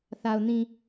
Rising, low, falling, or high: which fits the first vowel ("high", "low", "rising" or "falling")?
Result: low